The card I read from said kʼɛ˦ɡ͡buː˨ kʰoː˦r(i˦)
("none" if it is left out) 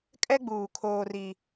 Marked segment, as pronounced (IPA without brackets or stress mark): i˦